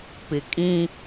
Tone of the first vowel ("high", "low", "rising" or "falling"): low